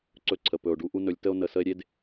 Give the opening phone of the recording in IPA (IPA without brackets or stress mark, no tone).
ǀ